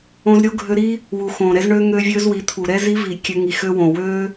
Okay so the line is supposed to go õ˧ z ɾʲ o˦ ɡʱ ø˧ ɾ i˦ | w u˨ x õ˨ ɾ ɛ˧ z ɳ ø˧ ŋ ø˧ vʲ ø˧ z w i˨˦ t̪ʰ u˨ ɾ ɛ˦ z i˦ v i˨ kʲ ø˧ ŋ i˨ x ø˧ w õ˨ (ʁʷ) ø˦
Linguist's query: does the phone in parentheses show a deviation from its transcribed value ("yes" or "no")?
yes